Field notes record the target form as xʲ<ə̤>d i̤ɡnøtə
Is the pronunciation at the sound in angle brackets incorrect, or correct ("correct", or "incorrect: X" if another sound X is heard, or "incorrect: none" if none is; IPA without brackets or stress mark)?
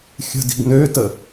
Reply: correct